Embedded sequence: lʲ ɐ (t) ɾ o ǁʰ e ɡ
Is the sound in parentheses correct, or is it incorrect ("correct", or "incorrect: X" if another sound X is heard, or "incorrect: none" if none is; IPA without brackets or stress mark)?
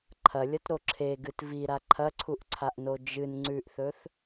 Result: correct